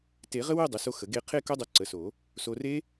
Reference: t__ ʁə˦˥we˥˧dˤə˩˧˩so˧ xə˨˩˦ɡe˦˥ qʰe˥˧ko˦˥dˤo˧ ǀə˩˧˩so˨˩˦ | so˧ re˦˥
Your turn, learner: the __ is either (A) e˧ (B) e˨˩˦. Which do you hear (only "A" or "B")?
B